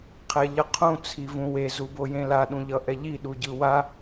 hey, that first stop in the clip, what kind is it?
aspirated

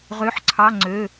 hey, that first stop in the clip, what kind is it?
click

